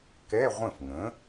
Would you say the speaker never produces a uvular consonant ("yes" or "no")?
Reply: no